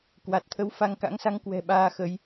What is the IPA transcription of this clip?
k w a˨˩ t̚ t̪ʰ ə˨˦ w f a˧ ŋ k a̰˧˥ ŋ s a˧ ŋ k w ɛ̤˨˩ ɓ aː˧ x ə˨˦ j

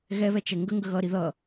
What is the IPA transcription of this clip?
ɣ ɛ β ɛ t͡ʃ ɛ ŋ ɡ ə ŋ ɡ ə ɣ ʌ ɾ i ð ʌ

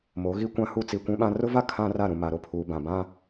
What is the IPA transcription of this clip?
m o˨˦ ɣ i˦ kʷ ã˦ h u˦ t͡s i˨ kʷ ũ˦ ɓ ã˦ r ʊ˦ v a˦ kʰ ã˦ r a˦˨ ɾ ũ˨ m a˨ ɾ o˨ pʰ uː˨ b ã˨ b ã˦

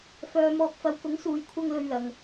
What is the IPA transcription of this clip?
f œː˨ m ɔː˨ k̚ f ɐ˨˧ w k ʊ˨˥ ŋ s uː˨ j kʷʰ ɐ˧ ŋ l ɵ˧ ɥ l ɐ˨ ŋ

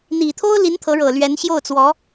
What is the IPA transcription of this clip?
n̪ i˨˩ t̪ʰ o˥ ʊ̯ l i˧˥ n t̪ʰ ɤ˧˥ ɻ ɤ˨˩ l ɥ ɛ˧˥ n ɕ j o˥˩ ʊ̯ t͡s w ɔ˧˥

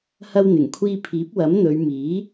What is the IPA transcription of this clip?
h ɐ˧ w n̪ ɪ˨˩ ŋ kʷʰ iː˧ pʰ iː˨˥ p̚ w ɐ˨˥ m n̪ ɵ˨˧ ɥ m iː˨˥

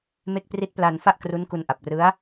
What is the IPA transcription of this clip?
m e˦˥ k̚ p r i˦˥ t̚ p l a˧ n f a˥˩ ʔ k r u˦˥ n k u˧ n ʔ a˨˩ p̚ r ɯ˦˥ a̯

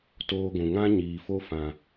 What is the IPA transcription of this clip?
t oː˧ ɡʷ ũ˨ ŋ ã˦ ɲ iː˨ f o˧ f ã˨

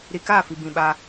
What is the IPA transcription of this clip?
ɾ i˨ k aː˦˨ f i˨ b ĩ˨ ɓ a˦

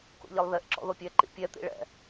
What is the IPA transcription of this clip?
k o̰ ʎ e lˠ ð e ʔ ǁ ɔ̰ ð o pʲ ɛ ǃ ḭ pʲ ɛ t̪ ḭ ɭ ɛ̰

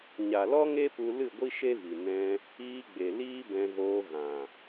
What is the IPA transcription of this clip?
ɲ a˨ l ɔ˦ ŋ e˦ p u˧ l ɨ˦˨ ɡʷ i˦ ʃ e˦ v i˨ n ɛ̃˧ | iː˧ ɡ͡b e˨ l iː˦ b ɛ̃˧ ɣ oː˧ ɣ ã˨

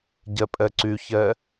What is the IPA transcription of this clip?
ɟ ɛ pʼ ɛ ǀ y ç ɛ

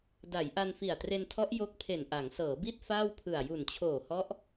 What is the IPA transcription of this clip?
d a˩˦ j ʔ a˧ n f i˨˩ a̯ t r e˧ n tʰ ɔ˦˥ ʔ j o˦˥ k̚ pʰ e˨˩ n ʔ a˩˦ ŋ s ɤː˩˦ b i˥˩ t̚ f aː˥˩ w pʰ ɯ˨˩ a̯ j u˨˩ n t͡ɕʰ oː˨˩ h ɔ˦˥ ʔ

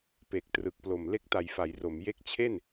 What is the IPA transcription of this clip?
p e˨˩ k̚ t r ɯ˨˩ k̚ p l o˨˩ m l e˦˥ k̚ t a˨˩ j f a˩˦ j r o˩˦ m j e˦˥ k̚ t͡ɕʰ e˥˩ n

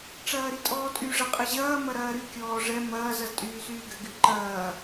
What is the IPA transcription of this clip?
ʈ͡ʂ ɐː ɾ i tʼ ɔː tʼ y ʐ ɐ qʼ ɘ ʑ ɐː m ɐ ɾ ɐː ɾ y kʲ ɔː ʐ ɛ m ɐː z ɐ z tʼ yː s yː ɡ ɘ ɡ y ǃ ɐː

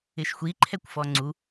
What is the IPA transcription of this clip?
ɪ ʃ xʷ i ǃʰ ɛ kʷ f ɔ ŋ͡ǀ u

